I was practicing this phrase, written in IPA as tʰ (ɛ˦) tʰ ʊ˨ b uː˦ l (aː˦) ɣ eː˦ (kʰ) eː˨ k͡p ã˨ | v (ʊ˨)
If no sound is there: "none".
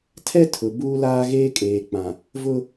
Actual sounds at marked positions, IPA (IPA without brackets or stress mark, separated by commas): ɛ˦, aː˦, kʼ, ʊ˦